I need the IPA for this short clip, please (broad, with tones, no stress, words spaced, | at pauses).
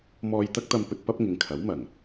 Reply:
mɔː˧jt̪ɐ˥k̚t̪ɐ˧mpɵ˧t̚ pɐ˥p̚ŋɪ˨ŋkʰɐ˨˥wmɐ˨˩ŋ